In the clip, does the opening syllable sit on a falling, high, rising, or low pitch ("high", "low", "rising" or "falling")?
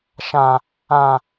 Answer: low